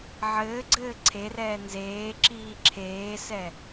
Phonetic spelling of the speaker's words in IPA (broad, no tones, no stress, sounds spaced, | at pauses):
ʕ ɘː ɡ͡ǀ ɘː ǀʰ e r ɛː n z eː ǁ iː ǁʰ eː s ɛ